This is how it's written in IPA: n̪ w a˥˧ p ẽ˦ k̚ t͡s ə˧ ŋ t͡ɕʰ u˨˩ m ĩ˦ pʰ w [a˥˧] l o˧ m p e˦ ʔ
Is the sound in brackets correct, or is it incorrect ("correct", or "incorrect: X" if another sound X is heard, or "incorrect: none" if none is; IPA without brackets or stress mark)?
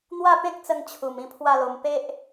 correct